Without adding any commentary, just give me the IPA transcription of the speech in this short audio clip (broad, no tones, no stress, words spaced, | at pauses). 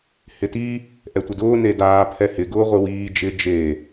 hɪti | ʔɛtʷɪdʊː nedaː pʰɛhɪ ɡʊːʁʷɪwiː d͡ʒɪ d͡ʒe